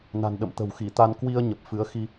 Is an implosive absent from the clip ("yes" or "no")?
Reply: no